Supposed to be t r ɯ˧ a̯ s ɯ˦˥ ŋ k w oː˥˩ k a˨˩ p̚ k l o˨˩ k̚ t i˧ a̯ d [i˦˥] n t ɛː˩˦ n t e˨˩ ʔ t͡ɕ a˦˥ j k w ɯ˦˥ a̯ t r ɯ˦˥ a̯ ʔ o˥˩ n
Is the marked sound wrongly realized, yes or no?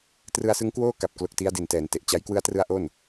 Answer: yes